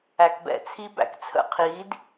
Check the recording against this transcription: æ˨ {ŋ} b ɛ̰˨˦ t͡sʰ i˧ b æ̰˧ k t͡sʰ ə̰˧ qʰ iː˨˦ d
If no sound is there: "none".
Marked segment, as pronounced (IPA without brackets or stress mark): k